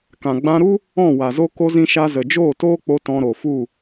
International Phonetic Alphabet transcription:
kã˨ɡ͡bã˧ɾu˦ | ɔ̃˦˨wa˨zo˦ ko˧zĩ˧ʃa˧ zə˨d͡ʒoː˦˨toː˦k͡po˧ tɔ̃˧ɾo˨fu˦˨

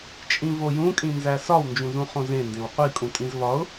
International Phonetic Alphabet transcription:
t͡ʃʼĩvojũkʼĩ nzæsɒw nd͡ʒũzũχõzẽ ndẽwqʷikʼũtʼĩz vɒʊ̯

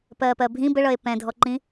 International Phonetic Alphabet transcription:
pɜːpɜbʱĩ bəɭʌe̯ pɛ̃dʱɔǃĩ

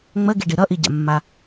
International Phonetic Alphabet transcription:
ŋ͡məɡiɖi ɾʌʔiɟa̰mːa

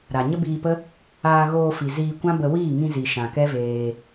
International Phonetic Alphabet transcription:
ɾa˨ ɲə˦biː˧pə˦ | aː˧ɣoː˧fi˨ ziː˧kʷã˦bə˧ wiː˦˨ŋĩ˧ zi˨ʃã˨ kɛ˦veː˧

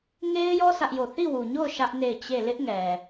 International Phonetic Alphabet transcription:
ŋe˦ɪ̯jɔ˦ sʰä˦ʔjo˦˨ θi˦˨wu˨ɲo˦˨ʊ̯ ʃä˦ʔ ne˦˨ɪ̯t͡ɕe˦˨ lɪ˦ʔŋɛ˨

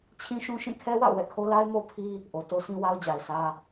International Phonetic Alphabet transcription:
t͡ɕʰĩ˦ʃũ˦ ʃĩ˦˨kʰɛ˦wa̰˦˨ʊ̯ wɛ̰˦˨kʰo˦ la˦ɪ̯mo˦pʰi˦ | ʔo˨to˦sĩ˦ wa˦ʊ̯d͡ʑa˨ɪ̯sä˦

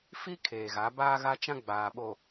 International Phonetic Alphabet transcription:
fi˦ kʰeː˨ɣa˨˦ baː˦ɣa˦t͡ʃã˦ ɡ͡baː˨ɓo˨

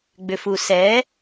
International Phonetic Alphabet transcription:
ɡ͡bʏfusɛ

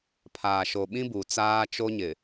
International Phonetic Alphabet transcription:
pʰaː˨ʃo˨ ɓĩ˦buː˨ t͡saː˦t͡ʃo˦ɲɪ˨

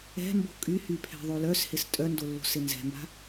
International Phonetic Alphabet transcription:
ɛ̤mbo̤ kʼyhy pʰɛ̤ðˤolœshɪs tʼœndolːo̤s ɪnzɛ̤mba̤

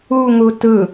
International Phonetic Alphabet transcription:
uŋu tɯ

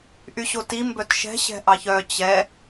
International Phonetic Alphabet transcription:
ʔyɕoti mbœtʃɛ̤ ɕɛ̤ʔɑçœ t͡ɕɛ

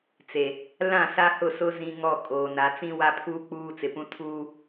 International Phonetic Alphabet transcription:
t͡se˨ | lã˦˨sa˦hʊ˦˨sʊ˦ zĩ˦ŋɔ˦˨ kʼoː˨na˨˦ t͡sĩ˦wa˦pʰuː˦ k͡puː˦t͡sɪ˨pũ˦ tʰuː˦

